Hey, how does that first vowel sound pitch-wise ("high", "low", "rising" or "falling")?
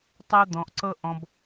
high